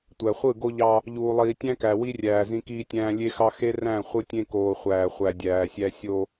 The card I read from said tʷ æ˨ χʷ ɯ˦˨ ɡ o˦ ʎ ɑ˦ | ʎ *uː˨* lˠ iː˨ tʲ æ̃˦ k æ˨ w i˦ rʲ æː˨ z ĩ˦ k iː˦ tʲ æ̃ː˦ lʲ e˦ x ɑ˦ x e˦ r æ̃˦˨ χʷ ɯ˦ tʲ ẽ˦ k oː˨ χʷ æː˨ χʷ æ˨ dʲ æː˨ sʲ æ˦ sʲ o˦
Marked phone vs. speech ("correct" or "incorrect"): correct